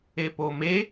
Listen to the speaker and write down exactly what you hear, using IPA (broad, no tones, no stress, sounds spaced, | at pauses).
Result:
e p o m e